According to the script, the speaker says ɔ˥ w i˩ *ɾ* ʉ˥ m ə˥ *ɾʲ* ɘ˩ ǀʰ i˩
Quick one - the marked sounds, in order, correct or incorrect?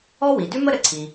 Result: incorrect, incorrect

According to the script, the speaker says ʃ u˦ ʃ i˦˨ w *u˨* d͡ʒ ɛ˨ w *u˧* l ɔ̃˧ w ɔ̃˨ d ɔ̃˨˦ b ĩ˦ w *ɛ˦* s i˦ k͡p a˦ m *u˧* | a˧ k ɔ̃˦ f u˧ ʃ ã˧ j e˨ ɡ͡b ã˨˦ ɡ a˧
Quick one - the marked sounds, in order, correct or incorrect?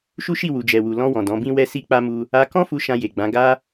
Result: correct, incorrect, correct, incorrect

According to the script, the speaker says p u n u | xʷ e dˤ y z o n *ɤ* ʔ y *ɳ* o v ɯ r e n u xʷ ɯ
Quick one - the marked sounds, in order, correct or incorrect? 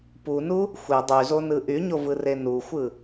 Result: incorrect, incorrect

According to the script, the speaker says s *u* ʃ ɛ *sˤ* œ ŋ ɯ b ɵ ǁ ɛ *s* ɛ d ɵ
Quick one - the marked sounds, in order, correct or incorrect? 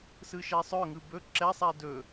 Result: incorrect, correct, incorrect

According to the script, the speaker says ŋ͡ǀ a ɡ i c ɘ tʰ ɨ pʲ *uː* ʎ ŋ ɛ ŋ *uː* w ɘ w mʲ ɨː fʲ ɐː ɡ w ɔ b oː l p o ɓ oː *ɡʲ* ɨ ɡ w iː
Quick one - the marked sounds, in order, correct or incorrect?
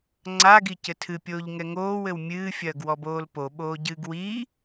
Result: incorrect, incorrect, incorrect

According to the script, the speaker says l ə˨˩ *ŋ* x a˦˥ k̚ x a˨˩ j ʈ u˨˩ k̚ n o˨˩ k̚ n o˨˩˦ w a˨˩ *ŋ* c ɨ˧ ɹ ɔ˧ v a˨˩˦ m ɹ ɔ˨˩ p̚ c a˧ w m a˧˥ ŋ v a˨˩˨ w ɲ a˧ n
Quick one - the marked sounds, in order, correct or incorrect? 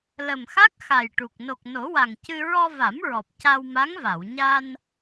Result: incorrect, correct

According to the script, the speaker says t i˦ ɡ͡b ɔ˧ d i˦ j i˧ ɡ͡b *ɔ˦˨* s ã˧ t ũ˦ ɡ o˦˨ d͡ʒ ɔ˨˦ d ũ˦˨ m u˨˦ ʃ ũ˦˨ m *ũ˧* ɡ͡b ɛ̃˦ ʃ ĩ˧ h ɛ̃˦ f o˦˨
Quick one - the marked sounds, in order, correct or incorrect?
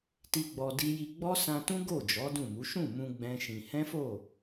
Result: incorrect, correct

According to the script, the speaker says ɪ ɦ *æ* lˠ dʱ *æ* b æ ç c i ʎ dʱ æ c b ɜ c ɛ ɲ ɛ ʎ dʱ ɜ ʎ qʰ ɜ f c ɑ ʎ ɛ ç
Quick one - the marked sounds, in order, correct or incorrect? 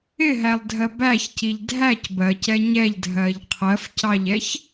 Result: correct, incorrect

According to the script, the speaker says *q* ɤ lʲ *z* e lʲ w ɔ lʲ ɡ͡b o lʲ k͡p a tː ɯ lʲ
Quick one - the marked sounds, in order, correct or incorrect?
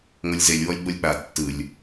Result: incorrect, correct

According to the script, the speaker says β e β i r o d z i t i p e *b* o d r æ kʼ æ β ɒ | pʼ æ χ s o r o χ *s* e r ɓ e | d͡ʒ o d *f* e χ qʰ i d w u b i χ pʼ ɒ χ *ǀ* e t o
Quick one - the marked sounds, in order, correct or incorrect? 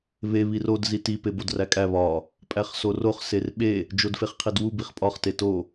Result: correct, correct, correct, incorrect

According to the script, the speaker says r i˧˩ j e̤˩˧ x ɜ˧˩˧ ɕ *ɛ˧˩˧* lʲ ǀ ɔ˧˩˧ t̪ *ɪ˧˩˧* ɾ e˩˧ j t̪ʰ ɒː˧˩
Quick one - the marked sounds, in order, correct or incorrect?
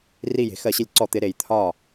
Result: incorrect, incorrect

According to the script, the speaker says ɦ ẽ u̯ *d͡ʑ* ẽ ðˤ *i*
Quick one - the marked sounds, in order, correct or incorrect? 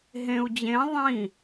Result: correct, incorrect

